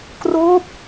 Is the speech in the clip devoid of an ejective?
yes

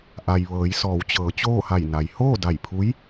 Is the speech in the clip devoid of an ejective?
yes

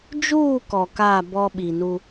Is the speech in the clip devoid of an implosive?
no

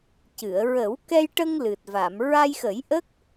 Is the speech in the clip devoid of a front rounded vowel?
yes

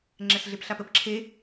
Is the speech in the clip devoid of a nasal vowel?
yes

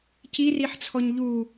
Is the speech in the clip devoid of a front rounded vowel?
yes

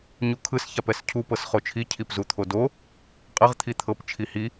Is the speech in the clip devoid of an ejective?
no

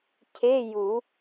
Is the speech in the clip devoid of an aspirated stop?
no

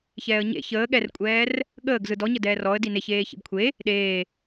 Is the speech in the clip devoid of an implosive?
no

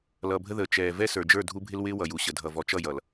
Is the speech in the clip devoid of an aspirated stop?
yes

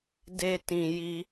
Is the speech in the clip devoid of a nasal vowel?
no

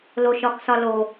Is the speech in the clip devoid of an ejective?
yes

